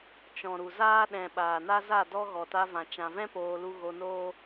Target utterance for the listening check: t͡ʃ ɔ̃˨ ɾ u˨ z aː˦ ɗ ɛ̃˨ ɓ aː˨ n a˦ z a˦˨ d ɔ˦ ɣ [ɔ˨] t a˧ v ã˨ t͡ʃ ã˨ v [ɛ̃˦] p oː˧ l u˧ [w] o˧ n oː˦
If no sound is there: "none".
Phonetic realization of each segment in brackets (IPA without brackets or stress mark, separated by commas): ɔ˨, ɛ̃˦, ɣ